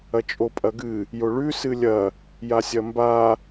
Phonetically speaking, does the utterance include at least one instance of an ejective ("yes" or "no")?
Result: yes